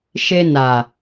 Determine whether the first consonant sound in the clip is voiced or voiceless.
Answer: voiceless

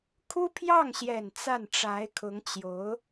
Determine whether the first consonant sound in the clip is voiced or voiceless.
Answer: voiceless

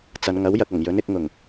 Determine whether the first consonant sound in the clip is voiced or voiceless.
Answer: voiceless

